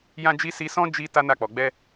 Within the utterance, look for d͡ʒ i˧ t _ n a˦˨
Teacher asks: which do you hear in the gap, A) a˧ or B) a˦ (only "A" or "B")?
B